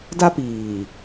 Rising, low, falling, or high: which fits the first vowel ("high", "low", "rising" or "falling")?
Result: high